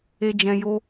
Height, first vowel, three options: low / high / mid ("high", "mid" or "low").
mid